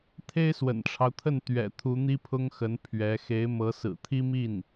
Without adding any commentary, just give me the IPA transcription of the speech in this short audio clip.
t̪ʰe˥ɪ̯swə̰˨˩nʈ͡ʂʰɑ˦ʊ̯t̪ʰə˥˩n t̪ɥɛ̰˨˩ t̪ʰu˧˥n̪i˥pʰʊ˥ŋxə˧˥n pʰɥɛ˧˥ xe˧˥ɪ̯mɤ˧˥ sɹ̩˨˩t̪ʰi˥mi˥˩n

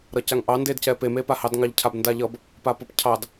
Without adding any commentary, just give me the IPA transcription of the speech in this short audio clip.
ɾʌcaŋʔɑ ndedcɛpe mepahɑd ŋɑʎcʰabndaʎʌb | papʌpcʰɑd

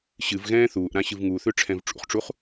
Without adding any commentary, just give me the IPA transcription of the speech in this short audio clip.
ɕɨvɣɛ̃ː θuːʔɾã ɕɨvŋuθʏ ʈ͡ʂʰɛ̃vʈ͡ʂṵχʈ͡ʂuχ

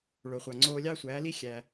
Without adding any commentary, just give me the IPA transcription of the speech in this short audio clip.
ɭo˩χʷɑ˩ŋ͡ǀoː˧ lʲɑ˥ sʷæː˩˥li˥ xʲæ˩

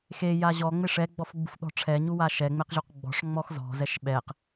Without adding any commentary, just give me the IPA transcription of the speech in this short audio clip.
xeja ʑɔŋ͡meʂ ɛɡ͡bɔfɡ͡bṳfɗɔ̤ ʈ͡ʂʰɛɲuwa ʃɛ ŋ͡meqʑuqɡ͡bɔ̤ʂ ŋ͡mɔxzɔ̤zɛʃ ɓɛq

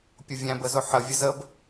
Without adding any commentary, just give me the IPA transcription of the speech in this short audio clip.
pʲʊvʲæ̃b əzʊħə vʲəzəb

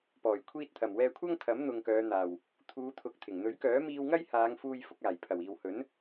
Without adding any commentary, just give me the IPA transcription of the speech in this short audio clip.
pɔː˨˩j kʷʰiː˧t̚t̪ʰɐ˨˩mwɛː˧ kʷʰɐ˥ŋt̪ʰɐ˨˥mn̪ʊ˨ŋkœː˨˧ n̪aː˨w | t̪ʰuː˨˧ t̪ʰʊ˨k̚t̪ʰɪ˨˩ŋn̪ɵ˨˥ɥ kœː˨˥miː˧wŋɐ˥j haː˨˧ŋfuː˧j fʊ˧k̚aː˨˩j pʰɐ˨˩w iː˨whɵ˨˥n

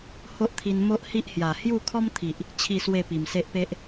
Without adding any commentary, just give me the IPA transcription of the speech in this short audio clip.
ho˦ʔt̪ʰi˧n mo˦ʔhi˦ʔhja˨˩ hju˥˧kʰɔ˦mt̪ʰi˨ʔ | t͡ɕʰi˥˧swe˥˧ pi˨˩mse˦ʔpe˦ʔ

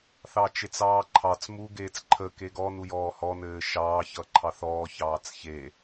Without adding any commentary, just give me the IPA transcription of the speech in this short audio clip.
θɑt͡ʃet͡sɑːǃʰɑt͡s mu ɡeːt͡sǃʰə keɡɔ nujɔːhɔ nɘːʃɑː çʌǃʰɑθɔː çɑːt͡sçe

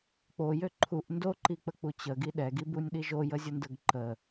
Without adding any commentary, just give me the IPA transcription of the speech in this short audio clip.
k͡pojø ǃʰuʔ ndoǃik͡pək͡pu t͡ɕəɡi ɗɛɡibunʲɗi ʒojəzʲəndəɡ ǃə

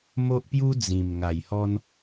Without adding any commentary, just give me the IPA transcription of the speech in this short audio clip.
mo˦ʔpju˦d͡zĩ˨˩m ŋa˨˩jhɔ˧n

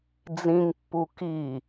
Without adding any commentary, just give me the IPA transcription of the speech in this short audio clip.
d͡zĩŋpːu ki

